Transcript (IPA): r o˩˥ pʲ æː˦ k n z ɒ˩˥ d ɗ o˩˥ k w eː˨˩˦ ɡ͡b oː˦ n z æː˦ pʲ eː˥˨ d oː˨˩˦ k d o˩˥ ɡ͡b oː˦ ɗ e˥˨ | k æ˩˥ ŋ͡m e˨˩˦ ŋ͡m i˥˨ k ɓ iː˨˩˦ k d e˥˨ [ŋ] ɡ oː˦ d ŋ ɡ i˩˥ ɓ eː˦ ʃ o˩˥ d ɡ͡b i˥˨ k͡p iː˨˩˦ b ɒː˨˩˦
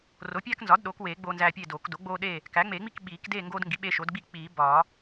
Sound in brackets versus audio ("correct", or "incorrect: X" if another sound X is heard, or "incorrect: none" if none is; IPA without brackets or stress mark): correct